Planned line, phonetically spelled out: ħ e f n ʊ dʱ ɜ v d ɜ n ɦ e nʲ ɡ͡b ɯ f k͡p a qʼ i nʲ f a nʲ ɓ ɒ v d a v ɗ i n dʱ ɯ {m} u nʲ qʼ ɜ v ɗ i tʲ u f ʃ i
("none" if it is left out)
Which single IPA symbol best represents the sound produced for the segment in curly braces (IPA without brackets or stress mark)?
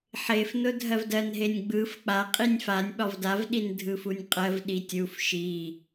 f